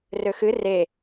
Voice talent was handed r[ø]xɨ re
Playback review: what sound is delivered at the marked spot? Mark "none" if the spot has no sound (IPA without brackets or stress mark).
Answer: ø